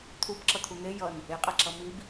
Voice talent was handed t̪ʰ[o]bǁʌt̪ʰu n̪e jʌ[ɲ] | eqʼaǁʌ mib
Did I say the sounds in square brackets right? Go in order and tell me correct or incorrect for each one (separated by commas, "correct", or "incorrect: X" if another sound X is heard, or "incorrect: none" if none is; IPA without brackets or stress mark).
incorrect: u, incorrect: n